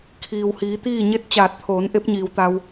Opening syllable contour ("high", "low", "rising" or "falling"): low